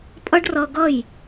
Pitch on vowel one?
high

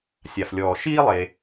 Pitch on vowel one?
low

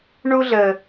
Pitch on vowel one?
high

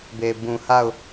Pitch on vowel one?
low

